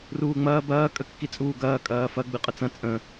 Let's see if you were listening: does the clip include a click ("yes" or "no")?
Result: no